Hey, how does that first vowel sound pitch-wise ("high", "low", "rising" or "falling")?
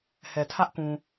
low